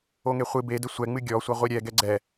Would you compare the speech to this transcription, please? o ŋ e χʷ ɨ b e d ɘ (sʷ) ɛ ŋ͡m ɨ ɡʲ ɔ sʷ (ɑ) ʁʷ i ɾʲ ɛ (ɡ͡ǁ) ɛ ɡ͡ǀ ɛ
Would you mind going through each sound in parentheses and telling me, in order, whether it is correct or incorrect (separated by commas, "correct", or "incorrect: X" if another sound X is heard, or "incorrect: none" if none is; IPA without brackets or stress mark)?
correct, incorrect: ɐ, incorrect: ɡ